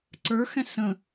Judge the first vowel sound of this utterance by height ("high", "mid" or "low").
mid